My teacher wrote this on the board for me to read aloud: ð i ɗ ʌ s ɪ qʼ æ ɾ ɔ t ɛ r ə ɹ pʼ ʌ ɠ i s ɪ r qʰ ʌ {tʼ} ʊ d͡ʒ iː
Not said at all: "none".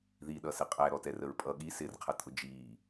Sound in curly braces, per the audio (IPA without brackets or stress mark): tʼ